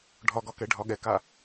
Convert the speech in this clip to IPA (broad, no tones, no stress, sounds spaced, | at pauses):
ɖʱ ɒ ɡ ɒ k ɛ ɖʱ ɒ ɠ ɛ k a